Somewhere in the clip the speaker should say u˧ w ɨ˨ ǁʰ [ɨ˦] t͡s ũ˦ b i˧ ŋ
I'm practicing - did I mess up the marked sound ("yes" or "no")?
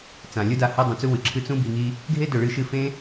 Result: no